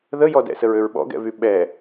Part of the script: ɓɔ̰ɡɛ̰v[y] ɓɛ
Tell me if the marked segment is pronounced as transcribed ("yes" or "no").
yes